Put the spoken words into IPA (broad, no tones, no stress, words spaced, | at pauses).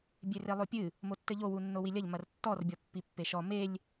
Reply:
bʲerelˠopʲɨ | motːɘʎo wunːowilʲɐʎ mɐrtːɔr bʲɔpːipːeʃɔ melʲ